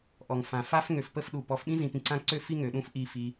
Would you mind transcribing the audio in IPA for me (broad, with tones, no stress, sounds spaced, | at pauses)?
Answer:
ʔ ɔ˨ ŋ f ã˨ f a˦ f ŋ ø˧ f p ə˦ f ɗ u˨ p ɔ˨ f ɓ ĩ˦ z ĩ˨ p ĩ˧ ǀ ã˦ ǀ ø˦ f i˦ ŋ ø˨ ɗ ũ˦ f ʔ i˧ f i˧